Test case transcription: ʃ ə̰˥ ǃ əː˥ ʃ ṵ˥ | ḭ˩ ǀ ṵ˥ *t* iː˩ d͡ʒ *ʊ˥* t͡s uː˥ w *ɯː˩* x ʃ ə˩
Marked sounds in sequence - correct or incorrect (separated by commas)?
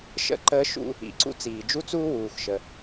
incorrect, incorrect, incorrect